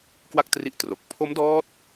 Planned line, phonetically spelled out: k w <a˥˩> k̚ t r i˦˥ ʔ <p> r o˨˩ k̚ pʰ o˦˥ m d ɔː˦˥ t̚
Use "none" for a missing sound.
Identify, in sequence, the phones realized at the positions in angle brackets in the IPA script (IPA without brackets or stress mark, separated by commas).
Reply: a˥˩, t